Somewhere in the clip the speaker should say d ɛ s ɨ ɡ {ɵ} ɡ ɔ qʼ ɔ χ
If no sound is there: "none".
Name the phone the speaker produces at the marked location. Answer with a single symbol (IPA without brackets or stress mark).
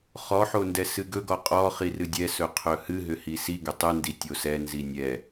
ɵ